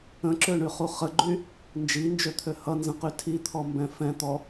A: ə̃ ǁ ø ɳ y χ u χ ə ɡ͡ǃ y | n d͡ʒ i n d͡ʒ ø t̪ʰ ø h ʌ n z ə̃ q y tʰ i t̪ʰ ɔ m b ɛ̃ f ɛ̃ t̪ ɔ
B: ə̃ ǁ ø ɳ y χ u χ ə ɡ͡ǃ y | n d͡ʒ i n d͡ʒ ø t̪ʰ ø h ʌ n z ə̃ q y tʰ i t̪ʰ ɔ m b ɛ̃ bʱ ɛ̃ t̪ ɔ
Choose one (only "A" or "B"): A